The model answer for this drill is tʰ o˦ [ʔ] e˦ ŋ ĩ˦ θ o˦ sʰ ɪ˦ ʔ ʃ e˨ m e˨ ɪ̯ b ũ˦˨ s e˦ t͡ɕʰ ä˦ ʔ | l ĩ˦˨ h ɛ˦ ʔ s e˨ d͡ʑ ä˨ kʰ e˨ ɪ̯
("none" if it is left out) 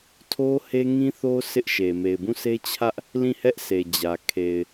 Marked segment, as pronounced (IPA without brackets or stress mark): h